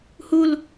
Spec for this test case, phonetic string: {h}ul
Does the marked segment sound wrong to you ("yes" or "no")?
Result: no